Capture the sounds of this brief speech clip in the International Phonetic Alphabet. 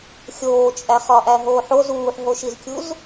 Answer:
xʲ oː t͡ʃʼ æ χ ɒ ʔ æ ɦ oː ħ o z uː ħ ɦ o ʃ i z kʲ u z

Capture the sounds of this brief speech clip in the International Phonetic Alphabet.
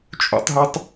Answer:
t͡ʃʼ ṵ tˤ ɦ o tˤ

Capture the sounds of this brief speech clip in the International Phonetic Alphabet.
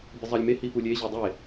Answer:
bʲ ə zˤ ɑ lʲ m e h i p u lʲ e ʑ ʏ dˤ e

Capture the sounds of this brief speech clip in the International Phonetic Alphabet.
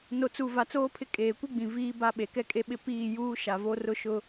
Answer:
n o˨ t͡s u˨ v a˨ t͡s oː˦ pʰ ɪ˦ kʼ eː˨ kʷ i˦ ɡ͡b ĩ˨ v iː˦ b a˦ ɓ e˨ k ɛ˦ kʼ e˦ ɓ ɪ˦ p iː˦˨ j uː˦ ʃ a˨ v o˦ r ʊ˦ ʃ ʊ˦

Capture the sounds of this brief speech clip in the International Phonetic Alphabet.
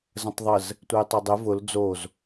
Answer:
z ə̃ tˤ ðˤ ə z | tʷ ɛ j tˤ o dˤ e v ʊ l d͡z o z

